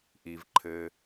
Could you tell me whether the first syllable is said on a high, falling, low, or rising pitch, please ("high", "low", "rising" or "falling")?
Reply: low